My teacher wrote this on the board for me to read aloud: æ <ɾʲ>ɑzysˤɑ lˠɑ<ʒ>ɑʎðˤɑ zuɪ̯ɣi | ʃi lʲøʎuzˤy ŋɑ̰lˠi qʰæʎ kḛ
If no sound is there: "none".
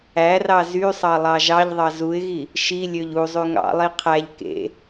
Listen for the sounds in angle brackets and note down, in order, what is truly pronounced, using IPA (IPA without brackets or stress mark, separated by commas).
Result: r, ʒ